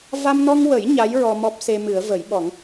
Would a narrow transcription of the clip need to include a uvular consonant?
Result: no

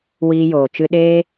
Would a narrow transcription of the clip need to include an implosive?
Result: yes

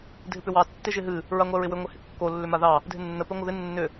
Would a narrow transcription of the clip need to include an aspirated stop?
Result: no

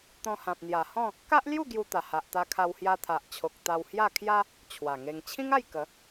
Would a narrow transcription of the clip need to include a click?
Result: no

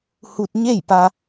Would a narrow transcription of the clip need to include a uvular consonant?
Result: no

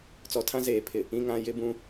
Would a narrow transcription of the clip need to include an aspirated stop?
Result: yes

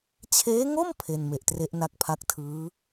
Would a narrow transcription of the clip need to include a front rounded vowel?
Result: no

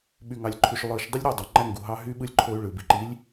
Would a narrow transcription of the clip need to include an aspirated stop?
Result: yes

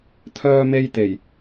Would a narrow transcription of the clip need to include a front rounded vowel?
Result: yes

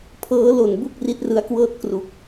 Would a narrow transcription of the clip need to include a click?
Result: no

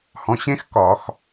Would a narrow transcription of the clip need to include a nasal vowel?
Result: yes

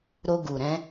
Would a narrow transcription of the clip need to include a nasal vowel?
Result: yes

